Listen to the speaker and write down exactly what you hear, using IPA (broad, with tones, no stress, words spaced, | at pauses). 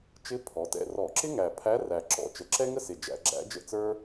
t͡ʃɪ˧˥ pʰɔ˩˥tɛ̰˥˨ rɔ˧˩˧ǁɪ˥ŋæ˨˩ pʰæ˧˥ræ˨˩ ǁɔ̰˨˩ t͡ʃə˩˥ǁɛ˥ŋə˥sɪ˨˩ d͡ʒæ̰˧˩˧ɡ͡ǁæ̰˧˥d͡ʒə̰˥˨ t͡sə˞˥